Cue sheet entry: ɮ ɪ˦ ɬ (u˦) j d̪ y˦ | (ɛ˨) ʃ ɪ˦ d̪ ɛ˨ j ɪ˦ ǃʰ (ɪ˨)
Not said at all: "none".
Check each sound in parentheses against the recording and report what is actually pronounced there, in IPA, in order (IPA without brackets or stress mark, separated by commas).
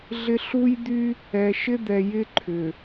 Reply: u˦, ɛ˨, ʏ˨